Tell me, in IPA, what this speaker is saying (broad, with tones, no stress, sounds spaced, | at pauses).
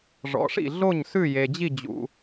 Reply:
ʐ ɔ̰˩˥ ʂ ḭ˥˩ ɮ o˥˩ ɲ s ʉ˥˩ j e˩ d͡ʑ i˥˩ d͡ʑ ṵ˩